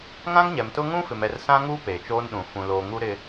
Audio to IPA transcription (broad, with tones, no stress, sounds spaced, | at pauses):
ŋ ã˦ ŋ ɲ ɛ˨ m t ʊ˦ ŋ ũ˦ f ɪ˨ m ɛ˨ r s ã˦ ŋ uː˦ p eː˨ t͡ʃ oː˦ n ɗ ũ˨ f ũ˨ l oː˨ ŋ u˦ ɾ ɪ˦